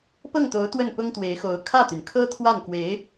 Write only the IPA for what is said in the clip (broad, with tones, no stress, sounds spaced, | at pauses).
p ɤ˥˩ ŋ t̪ o˧˥ ʊ̯ t̪ w ə˥˩ n p ʊ˥ ŋ t̪ w e˧˥ ɪ̯ x o˧˥ ʊ̯ kʰ ä˥˩ t̪ y˩ n kʰ ɤ˥ t̪ʰ w a˥˩ n k w e˧˥ ɪ̯